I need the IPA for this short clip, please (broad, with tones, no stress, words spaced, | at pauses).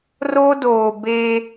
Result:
roː˦doː˨ be˦